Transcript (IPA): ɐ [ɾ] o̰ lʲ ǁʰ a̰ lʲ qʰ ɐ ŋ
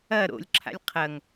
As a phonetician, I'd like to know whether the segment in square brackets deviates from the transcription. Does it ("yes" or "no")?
no